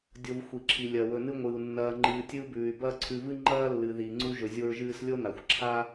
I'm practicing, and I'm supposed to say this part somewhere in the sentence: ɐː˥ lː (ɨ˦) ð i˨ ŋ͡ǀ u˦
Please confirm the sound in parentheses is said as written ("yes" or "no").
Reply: no